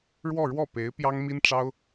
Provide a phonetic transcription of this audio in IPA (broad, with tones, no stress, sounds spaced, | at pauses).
ɻ w ɔ˥˧ ɻ w ɔ˥˩ p e˧˥ ɪ̯ p j ɑ˥ ŋ m i˥ n ʈ͡ʂ ɑ˥ ʊ̯